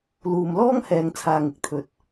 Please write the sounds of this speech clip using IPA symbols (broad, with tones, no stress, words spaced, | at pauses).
luː˨mlɔː˥ŋhɛː˨ŋ t͡sʰaː˨ŋɪ˨k̚t̪ʰɵ˨t̚